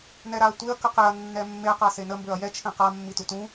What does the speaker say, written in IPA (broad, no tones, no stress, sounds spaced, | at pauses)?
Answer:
n ɛ ɾ a ɐ̯ tʷ e ɐ̯ k ə q e ɐ̯ nː ɛ mː e q a s e n ə m b ø ɐ̯ j ɛ t͡ʃʰ ẽ q a mː i t u t ũ